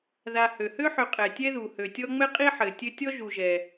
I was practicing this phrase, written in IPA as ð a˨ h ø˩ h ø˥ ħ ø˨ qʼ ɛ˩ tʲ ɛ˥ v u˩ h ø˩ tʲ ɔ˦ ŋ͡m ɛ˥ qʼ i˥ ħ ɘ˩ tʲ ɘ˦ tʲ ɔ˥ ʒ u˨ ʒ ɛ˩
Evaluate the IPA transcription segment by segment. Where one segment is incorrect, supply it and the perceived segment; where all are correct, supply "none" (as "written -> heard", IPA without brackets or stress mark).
v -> ð